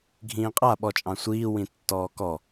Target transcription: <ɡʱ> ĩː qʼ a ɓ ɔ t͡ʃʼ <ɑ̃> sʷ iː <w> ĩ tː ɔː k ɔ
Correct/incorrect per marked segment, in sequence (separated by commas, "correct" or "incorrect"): correct, correct, correct